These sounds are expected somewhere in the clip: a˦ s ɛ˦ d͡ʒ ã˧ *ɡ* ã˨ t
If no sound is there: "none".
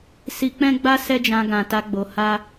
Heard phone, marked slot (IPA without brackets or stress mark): ɡ